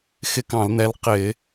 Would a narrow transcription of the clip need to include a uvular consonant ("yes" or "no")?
yes